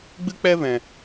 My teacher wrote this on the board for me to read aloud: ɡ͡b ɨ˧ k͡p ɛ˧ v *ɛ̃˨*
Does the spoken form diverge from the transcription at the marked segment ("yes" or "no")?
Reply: no